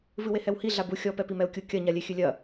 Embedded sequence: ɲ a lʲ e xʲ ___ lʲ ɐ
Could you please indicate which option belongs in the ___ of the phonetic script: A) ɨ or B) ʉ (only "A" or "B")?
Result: A